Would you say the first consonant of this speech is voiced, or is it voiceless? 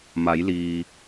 voiced